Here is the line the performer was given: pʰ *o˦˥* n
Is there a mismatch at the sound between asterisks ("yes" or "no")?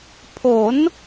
yes